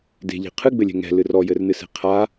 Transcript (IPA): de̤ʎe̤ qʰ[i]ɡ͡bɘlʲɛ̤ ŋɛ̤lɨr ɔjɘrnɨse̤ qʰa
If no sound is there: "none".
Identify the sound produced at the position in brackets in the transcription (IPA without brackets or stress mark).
ɨ